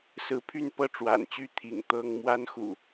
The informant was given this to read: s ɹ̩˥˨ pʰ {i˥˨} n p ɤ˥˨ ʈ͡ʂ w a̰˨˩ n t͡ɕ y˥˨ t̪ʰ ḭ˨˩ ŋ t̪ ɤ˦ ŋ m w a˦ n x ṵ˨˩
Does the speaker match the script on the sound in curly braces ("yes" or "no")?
no